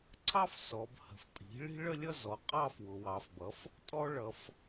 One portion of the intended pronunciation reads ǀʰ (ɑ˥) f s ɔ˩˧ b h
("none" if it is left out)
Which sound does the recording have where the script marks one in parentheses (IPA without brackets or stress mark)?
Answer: ɑ˥